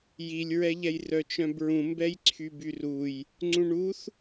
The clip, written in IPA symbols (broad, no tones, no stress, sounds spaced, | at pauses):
j i lʲ ɹ ɛ ʎ ɛ j r œ t͡ʃ œ̃ b ɹ ũ m b ɛ j ǀʰ y b y r u j | ŋ͡ǀ ũ ɳ u θ